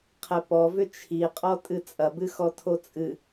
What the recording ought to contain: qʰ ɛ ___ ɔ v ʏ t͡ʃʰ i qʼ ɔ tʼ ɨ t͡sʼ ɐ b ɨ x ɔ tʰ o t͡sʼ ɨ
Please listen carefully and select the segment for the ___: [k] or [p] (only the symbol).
p